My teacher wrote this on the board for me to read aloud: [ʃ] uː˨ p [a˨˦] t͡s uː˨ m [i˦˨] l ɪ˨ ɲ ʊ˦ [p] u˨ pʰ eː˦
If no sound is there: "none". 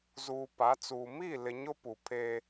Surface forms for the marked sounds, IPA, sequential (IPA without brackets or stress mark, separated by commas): z, a˨˦, i˦˨, p